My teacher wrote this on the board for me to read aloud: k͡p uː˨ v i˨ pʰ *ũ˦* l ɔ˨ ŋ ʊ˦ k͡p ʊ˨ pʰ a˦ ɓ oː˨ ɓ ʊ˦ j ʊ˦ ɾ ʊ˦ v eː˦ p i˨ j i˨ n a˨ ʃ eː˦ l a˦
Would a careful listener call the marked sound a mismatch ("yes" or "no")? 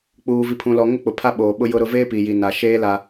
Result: yes